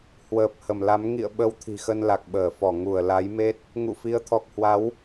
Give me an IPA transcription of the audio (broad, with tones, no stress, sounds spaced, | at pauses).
h w əː˨˩ p̚ h ə˧˩ m l a˨˦ m ŋ ḭ˧˨ ə̯ ɓ ə˨˦ w t̪ʰ i̤˨˩ x ə˧ n l a˨˩ k̚ ɓ əː˧˩ f ɔ˧˩ ŋ u˧˩ ə̯ l a˨˦ j m e˦˥ t̚ | ŋ ṵ˧˨ f i˨˦ ə̯ t̪ʰ ɔ˨˩ k̚ h w a˨˦ w